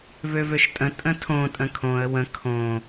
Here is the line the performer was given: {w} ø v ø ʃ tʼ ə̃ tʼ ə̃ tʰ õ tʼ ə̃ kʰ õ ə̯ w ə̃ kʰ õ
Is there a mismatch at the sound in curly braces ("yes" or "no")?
yes